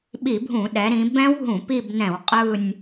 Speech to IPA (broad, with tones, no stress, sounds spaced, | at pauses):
ɓ i˧˩˧ bʱ ũ˧˩˧ ɗ ɛ˩˧ ɾ ĩ˩˧ b ɛ̃˦˥ w ɦ ũ˧˩˧ p i˦˨ b n ɛ̃˧˩˧ w qʼ ɯ˦˨ nʲ